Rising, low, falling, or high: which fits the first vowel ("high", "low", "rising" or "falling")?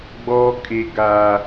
high